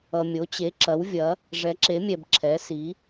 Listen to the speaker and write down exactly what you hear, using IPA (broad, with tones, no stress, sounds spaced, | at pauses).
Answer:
ʌ˩ mʲ o˩˧ t͡ɕ e˩˧ ǁ ɐ˩˧ w vʲ ɐ˩˧ | ʐ ɛ˩˧ ǁ e˩˧ mʲ ɛ˩ b ǁʰ ɛ˩˧ s i˩˧